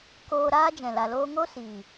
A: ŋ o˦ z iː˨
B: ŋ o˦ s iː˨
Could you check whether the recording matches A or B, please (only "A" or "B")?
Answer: B